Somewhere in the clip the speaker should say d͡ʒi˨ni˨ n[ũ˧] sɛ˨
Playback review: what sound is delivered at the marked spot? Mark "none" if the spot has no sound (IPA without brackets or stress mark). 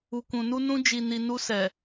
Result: u˧